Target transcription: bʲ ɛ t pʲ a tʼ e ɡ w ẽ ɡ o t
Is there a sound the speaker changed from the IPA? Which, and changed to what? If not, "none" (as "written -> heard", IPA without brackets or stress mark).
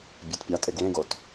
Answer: none